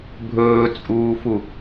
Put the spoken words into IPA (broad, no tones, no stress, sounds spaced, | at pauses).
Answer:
bʱ ɵː t͡sʼ uː f u